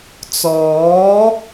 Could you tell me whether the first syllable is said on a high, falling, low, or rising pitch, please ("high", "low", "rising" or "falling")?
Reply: rising